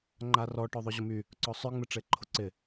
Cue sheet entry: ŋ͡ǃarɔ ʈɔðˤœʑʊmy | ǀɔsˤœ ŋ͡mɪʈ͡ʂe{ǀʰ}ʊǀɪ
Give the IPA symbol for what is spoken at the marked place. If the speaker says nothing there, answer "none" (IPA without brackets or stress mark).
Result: ǃʰ